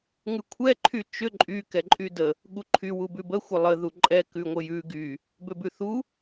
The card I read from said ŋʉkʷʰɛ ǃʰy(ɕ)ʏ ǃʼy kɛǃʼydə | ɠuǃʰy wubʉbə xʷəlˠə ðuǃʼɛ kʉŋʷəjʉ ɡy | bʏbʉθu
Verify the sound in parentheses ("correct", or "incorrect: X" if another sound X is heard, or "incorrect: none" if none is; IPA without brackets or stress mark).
incorrect: t͡ʃ